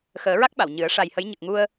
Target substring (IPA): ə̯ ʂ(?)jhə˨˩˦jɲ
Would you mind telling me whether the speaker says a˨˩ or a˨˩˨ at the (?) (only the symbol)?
a˨˩